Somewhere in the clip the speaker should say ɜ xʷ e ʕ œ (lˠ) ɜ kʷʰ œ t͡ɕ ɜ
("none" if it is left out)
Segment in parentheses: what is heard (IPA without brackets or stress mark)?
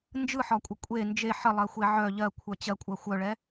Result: ʎ